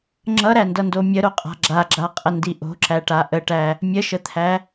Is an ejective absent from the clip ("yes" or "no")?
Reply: no